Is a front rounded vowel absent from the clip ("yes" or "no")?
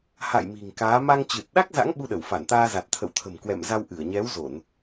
yes